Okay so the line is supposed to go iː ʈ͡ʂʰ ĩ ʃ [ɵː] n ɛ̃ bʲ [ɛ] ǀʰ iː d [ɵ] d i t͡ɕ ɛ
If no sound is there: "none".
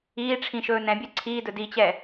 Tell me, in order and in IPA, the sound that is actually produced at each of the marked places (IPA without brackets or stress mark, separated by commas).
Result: ɵː, ɛ, ɵ